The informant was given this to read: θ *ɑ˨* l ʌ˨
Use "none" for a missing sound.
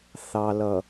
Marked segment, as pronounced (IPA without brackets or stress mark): ɑ˨